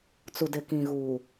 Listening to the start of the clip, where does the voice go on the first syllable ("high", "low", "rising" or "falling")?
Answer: low